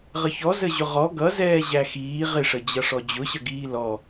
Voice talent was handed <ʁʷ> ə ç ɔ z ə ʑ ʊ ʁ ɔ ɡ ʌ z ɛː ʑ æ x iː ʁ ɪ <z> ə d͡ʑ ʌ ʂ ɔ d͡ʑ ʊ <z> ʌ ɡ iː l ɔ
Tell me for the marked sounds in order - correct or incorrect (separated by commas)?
incorrect, incorrect, incorrect